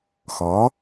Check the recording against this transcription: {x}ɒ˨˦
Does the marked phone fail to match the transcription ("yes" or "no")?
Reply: no